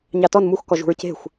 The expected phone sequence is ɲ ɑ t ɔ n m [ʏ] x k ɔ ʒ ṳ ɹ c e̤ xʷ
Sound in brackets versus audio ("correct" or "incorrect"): incorrect